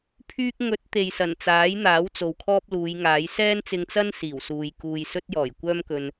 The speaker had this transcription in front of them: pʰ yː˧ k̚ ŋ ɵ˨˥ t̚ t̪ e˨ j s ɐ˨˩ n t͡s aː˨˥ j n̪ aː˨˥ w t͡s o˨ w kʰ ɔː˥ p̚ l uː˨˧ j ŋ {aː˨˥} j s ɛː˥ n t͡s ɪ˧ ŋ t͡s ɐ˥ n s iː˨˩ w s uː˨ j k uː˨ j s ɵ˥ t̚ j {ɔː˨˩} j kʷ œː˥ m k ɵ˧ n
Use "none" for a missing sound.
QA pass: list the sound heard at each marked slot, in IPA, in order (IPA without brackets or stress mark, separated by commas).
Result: aː˨˥, ɔː˨˩